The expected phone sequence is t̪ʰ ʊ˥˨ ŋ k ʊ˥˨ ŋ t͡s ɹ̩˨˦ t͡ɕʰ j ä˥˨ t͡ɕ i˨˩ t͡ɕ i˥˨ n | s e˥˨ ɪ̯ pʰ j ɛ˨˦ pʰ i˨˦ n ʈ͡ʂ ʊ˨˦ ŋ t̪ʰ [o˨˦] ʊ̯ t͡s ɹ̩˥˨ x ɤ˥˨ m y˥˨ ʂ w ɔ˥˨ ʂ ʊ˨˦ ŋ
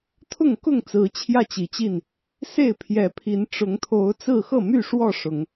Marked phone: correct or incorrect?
correct